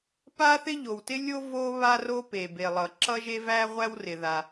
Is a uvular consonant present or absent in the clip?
present